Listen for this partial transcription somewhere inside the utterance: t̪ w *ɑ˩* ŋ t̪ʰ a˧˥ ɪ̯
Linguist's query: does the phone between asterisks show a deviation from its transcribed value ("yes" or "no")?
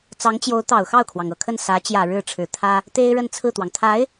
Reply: no